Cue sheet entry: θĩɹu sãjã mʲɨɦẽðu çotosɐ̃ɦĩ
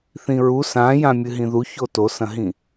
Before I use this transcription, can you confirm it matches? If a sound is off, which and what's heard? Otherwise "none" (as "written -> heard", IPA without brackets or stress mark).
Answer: ẽ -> ĩ